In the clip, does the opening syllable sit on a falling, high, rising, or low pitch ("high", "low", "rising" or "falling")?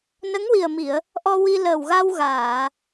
rising